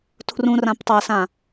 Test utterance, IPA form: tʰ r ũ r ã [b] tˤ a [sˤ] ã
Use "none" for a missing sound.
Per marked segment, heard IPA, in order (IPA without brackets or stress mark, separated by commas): p, s